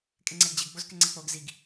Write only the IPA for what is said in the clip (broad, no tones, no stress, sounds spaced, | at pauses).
kʼ ɪ ŋ͡ǀ ɛ ɡ d͡ʑ ɪ ɡ ɡ͡b o z k ɪ ŋ͡ǀ ɛ k͡p o ɡ z i ɡ